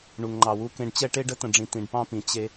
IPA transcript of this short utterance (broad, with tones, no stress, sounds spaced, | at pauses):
ɳ u˨ ŋ ŋ͡ǃ ɑ˨ w u˦ k ẽ˦ ɖ t͡ɕ ɛ˦ ʈ e˦ ɖ ə˦ t ə̃˨ ɖ͡ʐ ĩ˨ t ĩ˨ ɖ p ɑ̃˦ p ĩ˨ t͡ɕ e˦